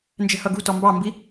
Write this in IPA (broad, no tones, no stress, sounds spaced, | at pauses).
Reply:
n d͡ʒ ɛ̤ h ʌ ɡ ṳ t ɔ m b ɑ m b i